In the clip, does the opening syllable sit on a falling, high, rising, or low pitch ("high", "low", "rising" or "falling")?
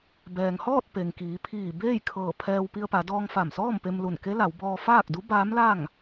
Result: low